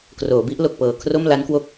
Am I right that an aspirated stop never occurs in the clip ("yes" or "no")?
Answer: no